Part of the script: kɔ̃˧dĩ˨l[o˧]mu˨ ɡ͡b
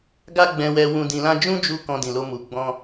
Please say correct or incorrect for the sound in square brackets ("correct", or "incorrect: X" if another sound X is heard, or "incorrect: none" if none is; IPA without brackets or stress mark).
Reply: correct